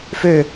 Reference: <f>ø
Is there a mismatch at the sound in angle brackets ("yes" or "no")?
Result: no